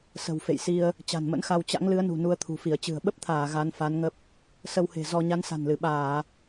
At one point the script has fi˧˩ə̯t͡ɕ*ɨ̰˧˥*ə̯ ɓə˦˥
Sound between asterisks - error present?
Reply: yes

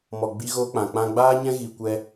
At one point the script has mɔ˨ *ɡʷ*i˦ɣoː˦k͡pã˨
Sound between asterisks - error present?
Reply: yes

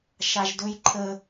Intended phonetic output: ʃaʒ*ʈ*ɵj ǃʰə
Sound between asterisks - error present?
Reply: yes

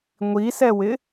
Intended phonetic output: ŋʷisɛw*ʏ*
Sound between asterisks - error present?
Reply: yes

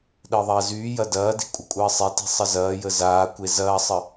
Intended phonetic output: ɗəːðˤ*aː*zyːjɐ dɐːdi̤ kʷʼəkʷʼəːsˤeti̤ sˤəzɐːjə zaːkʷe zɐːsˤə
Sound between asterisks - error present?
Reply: yes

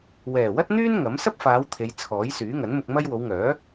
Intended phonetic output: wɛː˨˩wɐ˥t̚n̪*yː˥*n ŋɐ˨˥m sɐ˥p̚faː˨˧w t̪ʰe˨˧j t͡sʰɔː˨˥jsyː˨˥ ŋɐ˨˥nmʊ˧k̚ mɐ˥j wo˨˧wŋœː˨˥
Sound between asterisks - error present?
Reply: no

